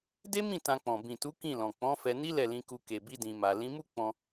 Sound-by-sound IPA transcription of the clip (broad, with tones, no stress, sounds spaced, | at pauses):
d e˦ m ĩ˦˨ t ã˧ k͡p ɔ̃˨ b ĩ˨ t u˨˦ k ĩ˦˨ l ɔ̃˨ k͡p ɔ̃˨˦ f ɛ˧ n i˦ l ɛ˦˨ l ĩ˨˦ k u˧ k e˨ b i˧ d ĩ˨ m a˨ l ĩ˨˦ m u˦ k͡p ɔ̃˧